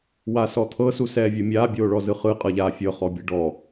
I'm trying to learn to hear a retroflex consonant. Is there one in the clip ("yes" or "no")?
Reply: yes